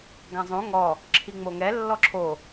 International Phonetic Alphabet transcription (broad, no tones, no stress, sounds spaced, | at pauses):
ɡ ã zˤ õ ŋ ɔ | ǁʰ i ŋ͡m o ŋ ɛ lː ɔ ǁʰ o